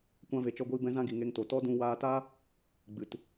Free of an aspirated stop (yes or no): yes